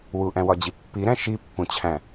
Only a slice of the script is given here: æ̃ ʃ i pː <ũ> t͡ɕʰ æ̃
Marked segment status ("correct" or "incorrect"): correct